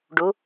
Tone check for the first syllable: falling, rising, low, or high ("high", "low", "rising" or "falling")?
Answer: rising